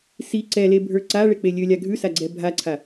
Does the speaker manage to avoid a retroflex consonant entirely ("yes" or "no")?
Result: no